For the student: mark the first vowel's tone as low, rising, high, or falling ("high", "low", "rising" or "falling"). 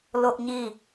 high